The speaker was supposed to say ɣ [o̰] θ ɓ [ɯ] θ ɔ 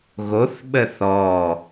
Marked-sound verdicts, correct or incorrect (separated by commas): incorrect, incorrect